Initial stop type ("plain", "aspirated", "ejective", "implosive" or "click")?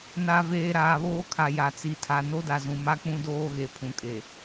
aspirated